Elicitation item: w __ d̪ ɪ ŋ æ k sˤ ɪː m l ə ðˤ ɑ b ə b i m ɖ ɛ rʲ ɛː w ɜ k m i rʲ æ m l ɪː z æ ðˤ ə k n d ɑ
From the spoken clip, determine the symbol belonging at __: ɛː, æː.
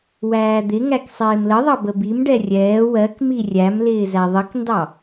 æː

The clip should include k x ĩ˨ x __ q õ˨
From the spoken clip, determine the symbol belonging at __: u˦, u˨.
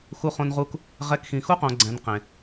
u˦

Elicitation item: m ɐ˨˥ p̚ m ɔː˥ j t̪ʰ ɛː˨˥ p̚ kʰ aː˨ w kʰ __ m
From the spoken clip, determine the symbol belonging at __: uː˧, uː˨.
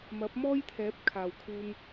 uː˧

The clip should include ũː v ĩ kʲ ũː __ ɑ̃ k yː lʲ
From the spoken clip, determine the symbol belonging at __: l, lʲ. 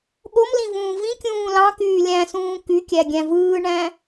l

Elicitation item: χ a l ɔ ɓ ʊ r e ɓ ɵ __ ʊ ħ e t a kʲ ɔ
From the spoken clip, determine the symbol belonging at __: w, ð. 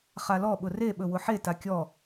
w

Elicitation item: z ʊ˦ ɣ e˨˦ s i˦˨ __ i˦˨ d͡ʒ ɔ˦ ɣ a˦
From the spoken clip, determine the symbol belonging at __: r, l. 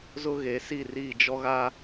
r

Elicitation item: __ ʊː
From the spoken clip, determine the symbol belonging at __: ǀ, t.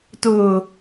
t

